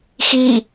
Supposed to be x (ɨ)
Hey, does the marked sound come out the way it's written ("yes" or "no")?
no